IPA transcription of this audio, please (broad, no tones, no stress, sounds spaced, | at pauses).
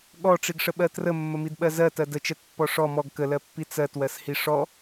ɠ ɔ ʈ͡ʂ i ɡ ʂ ə ɓ ɜ t r ə mː ə m i d ɓ ɜ z ɜ t ɜ d ə t͡ʃ ɜ t pː ɔ ʂ ɔ m ɔ ɡ k ə l ɜ pː i t͡s ɜ t w ɜ s h i ʂ ɔ